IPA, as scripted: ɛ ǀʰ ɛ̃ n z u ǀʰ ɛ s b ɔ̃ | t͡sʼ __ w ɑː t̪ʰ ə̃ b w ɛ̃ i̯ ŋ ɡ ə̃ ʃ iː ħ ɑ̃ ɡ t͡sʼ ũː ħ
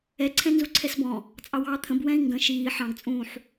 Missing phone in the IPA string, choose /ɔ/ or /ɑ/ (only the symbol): ɑ